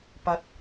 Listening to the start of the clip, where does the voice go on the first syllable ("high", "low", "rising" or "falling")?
low